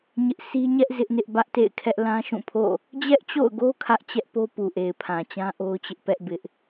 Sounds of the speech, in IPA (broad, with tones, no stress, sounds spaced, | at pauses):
ɲ ɪ˦ ʔ sʰ i˦ ɲ ɛ˦ ʔ z ɪ˦ ʔ n ɪ˦ ʔ b ä˦ ʔ t ḛ˦˨ ɪ̯ kʰ ɛ˦ ʔ l ã˦ ʃ ũ˦˨ pʰ o̰˦˨ | d͡ʑ ɛ˦ ʔ t͡ɕ o̰˦˨ ʊ̯ ɡ o˦ kʰ ä˦ ʔ t͡ɕ ɛ˦ ʔ p o˦ p u˨ ʔ e˨ ɪ̯ pʰ ã˨ t͡ɕ ã˦ ʔ o˦ ʊ̯ t͡ɕ ɪ˦ ʔ p ɛ˦ ʔ b ɪ˦ ʔ